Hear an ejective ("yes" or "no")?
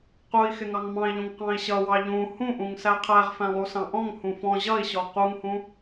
no